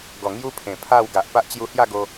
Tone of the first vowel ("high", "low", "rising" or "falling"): low